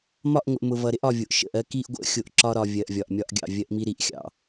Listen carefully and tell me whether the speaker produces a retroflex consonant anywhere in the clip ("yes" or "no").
no